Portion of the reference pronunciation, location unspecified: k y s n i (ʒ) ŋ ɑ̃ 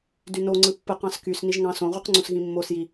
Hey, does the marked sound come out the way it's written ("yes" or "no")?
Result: yes